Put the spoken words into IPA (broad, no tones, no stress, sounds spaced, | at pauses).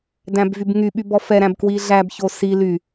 d æ̃ b v y b ŋ y ɓ y b ɔ f ɛ ɾ æ̃ b k w i ɮ æ b ç o s i l y